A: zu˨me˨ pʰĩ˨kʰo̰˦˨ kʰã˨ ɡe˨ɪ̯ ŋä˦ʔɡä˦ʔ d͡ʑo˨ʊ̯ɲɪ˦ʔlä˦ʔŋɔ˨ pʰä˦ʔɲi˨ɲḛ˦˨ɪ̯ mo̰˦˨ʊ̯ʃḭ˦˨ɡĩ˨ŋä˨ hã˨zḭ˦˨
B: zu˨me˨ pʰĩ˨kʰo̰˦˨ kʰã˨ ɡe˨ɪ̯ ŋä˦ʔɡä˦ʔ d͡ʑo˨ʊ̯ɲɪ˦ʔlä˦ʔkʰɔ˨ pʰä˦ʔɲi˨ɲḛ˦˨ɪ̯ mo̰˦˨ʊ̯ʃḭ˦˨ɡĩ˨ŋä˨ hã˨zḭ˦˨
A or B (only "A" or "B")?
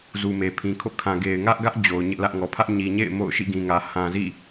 A